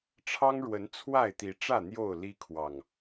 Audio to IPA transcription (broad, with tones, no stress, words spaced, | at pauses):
ʈ͡ʂʰɑ˦ŋɻwə˨˦n t͡sʰwa˥˨ɪ̯t̪i˨˦ʈ͡ʂä˥˨ n̪jo˥˨ʊ̯ li˦ kʰwɑ˨˩ŋ